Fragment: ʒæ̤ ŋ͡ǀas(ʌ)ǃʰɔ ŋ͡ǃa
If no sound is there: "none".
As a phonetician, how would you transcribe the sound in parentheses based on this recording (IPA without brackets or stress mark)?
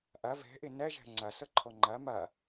ʌ